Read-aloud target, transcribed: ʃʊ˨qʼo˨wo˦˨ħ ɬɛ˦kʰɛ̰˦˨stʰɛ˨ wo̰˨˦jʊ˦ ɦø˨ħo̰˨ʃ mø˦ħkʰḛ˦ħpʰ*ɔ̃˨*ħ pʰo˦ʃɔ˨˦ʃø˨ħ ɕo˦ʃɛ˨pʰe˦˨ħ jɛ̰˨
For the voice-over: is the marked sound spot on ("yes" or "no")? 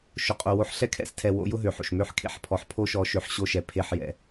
no